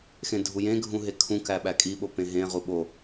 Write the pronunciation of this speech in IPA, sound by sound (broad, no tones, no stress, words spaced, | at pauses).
xẽdʱujẽ ɡʱũɦekʰũ kæɓækʼi ɓopẽɦẽ ʁuɓo